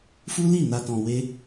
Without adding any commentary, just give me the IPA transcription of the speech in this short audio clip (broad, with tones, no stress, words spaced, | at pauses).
fu˦li˦˨ na˧tɔ̃˧we˦